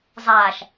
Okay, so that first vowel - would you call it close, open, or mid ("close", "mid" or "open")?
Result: open